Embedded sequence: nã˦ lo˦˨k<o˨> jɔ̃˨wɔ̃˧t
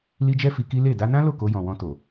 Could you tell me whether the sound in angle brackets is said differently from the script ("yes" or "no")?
yes